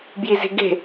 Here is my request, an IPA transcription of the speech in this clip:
bjize̤ɡe̤

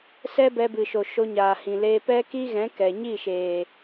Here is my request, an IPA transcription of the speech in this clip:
sɛ˦bɛ˧bɨ˨ʃo˨ ʃo˧ɲaː˨hĩ˨leː˧ pɛ˦ki˦ɣɛ̃˨˦ kɛ˨ ɲi˦˨ ʃeː˨

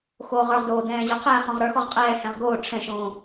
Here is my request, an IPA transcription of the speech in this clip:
xoːʁə˞ʁdoː dɛ̃ːʑɔqʰɛː χɔ̃ʁɾə˞xɔʁ qʼɛːhɛ̃ʁ ɡoː ʈ͡ʂʰɛ̃ʃõː

